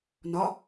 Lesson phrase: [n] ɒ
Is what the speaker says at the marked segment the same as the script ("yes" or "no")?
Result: yes